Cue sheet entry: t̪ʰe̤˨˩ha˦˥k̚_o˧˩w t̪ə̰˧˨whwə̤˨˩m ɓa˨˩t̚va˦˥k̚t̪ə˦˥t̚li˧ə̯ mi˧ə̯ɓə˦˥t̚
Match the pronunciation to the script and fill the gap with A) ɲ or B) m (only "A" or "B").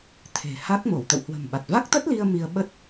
B